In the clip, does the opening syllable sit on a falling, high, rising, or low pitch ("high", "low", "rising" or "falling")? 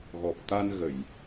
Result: low